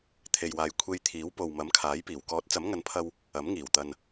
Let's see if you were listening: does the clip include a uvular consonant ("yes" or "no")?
no